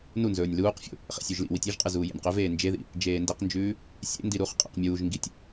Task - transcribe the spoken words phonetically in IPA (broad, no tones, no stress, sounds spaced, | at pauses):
n u n z ɵː nʲ l uː q fʲ o̰ | χ ḛ sʲ ʉ ʒ l ḭ w i tʲ i ʒ qʼ ɨ z uː j ḛ nʲ q ɵ v eː n d͡ʒ e ð ḭ | d͡ʒ eː n d e q n d͡ʒ ʉː | sʲ ḛ n d i ɾ u χ qʼ ḭ q mʲ uː ʒ ŋ ɡ i tʲ